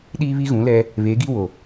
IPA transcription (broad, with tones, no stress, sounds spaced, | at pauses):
ɗ iː˦ β i˦ ɣ ũ˨˦ l ɛ˦ | β eː˨˦ ɡ i˦ w o˨